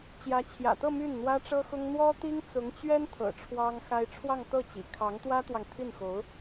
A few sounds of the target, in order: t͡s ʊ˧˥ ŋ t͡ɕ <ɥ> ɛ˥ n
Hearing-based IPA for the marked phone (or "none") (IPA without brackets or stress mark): ɥ